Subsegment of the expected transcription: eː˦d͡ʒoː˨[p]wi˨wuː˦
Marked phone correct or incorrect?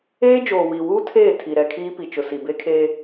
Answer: incorrect